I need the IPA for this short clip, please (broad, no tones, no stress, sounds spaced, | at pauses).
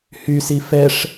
h y s i f ɛ ʂ